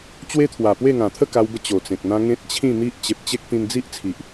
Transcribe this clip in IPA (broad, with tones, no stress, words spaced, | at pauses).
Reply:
t͡ɕwe˦t̪ʰwa˨˩pwe˥˧ŋã˨˩ t̪ʰə˥˧ka˧wbə˧ t͡ɕo˨˩t͡sẽ˨k̚n̪ã˦ ŋẽ˦t̚t͡ɕʰĩ˥˧n̪i˦ʔ t͡ɕe˨p̚t͡ɕe˦k̚ t̪ĩ˧nd͡zi˦ʔ t͡sʰi˨ʔ